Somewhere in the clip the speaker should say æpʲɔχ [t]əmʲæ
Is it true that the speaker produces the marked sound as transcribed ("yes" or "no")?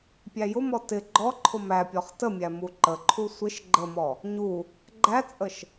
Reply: yes